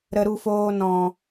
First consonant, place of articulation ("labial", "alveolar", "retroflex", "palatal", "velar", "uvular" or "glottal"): alveolar